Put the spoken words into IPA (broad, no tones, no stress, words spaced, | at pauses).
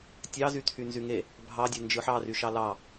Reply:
tʲɑzyt̪ʰy nzyŋe | bʱɑdʲe nd͡ʒɯħɑry ʃɑlɑ